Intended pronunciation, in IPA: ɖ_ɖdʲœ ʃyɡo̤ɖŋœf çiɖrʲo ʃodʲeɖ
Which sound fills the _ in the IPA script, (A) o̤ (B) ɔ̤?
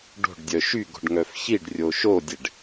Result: A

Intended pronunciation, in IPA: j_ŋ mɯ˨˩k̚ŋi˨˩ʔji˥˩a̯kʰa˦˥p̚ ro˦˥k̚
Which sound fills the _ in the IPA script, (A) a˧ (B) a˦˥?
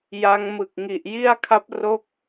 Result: B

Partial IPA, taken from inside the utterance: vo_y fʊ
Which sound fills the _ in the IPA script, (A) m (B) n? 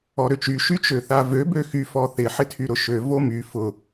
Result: A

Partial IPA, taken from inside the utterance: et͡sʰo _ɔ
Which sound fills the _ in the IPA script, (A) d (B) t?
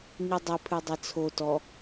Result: B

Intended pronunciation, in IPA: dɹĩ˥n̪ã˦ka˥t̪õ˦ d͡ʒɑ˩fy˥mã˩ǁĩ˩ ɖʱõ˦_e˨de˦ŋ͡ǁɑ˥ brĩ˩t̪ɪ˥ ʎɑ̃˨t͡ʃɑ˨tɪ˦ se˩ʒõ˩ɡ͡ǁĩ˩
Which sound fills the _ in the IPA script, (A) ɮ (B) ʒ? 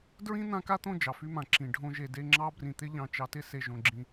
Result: B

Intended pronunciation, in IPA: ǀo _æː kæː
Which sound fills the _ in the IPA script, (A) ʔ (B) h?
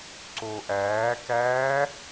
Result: A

